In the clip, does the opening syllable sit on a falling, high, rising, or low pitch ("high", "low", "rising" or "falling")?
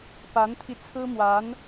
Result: rising